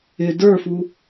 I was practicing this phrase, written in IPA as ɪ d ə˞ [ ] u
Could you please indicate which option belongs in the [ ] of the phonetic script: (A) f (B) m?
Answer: A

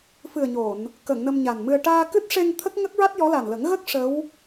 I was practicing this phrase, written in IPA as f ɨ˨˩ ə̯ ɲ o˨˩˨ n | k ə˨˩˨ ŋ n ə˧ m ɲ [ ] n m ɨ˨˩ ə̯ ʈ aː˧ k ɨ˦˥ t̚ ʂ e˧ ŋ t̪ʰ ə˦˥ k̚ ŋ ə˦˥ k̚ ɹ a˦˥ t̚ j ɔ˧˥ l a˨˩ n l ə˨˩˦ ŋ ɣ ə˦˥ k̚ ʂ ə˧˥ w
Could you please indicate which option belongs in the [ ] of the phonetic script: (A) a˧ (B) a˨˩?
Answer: B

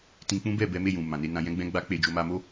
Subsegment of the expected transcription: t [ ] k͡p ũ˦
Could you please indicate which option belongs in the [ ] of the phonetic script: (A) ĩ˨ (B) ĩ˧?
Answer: B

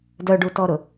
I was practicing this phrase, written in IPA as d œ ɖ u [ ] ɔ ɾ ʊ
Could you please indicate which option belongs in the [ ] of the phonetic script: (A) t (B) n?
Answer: A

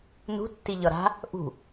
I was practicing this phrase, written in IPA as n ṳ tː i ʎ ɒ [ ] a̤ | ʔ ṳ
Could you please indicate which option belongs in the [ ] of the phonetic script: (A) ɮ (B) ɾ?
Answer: B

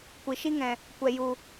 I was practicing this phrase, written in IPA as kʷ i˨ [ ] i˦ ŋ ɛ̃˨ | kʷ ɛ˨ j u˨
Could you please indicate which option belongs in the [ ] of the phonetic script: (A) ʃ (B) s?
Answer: A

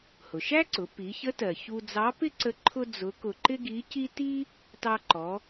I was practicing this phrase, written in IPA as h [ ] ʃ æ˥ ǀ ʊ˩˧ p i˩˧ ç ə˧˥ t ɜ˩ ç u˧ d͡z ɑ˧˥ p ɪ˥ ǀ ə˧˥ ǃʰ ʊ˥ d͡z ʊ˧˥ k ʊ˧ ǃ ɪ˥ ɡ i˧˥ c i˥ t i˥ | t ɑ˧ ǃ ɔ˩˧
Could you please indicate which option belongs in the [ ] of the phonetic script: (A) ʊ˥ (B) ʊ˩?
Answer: B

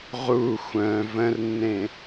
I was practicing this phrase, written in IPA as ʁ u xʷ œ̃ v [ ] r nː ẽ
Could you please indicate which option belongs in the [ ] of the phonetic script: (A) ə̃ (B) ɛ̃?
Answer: A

